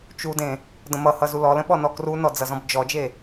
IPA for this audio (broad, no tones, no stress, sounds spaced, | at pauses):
t͡ʃ u d ẽ | d ə̃ m ʌ h ʌ z u l ɔ l ə̃ ɓ ɔ n ɔ k r u n ɔ d͡z ʌ z ɔ̃ b d͡ʒ ɔ d͡ʒ e